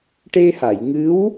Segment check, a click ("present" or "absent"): absent